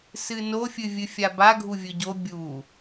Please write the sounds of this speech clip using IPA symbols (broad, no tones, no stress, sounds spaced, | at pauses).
s ɨ n o fʲ ɨ vʲ ɨ fʲ a b a ɡʱ u vʲ ɵ ɟ o bʲ u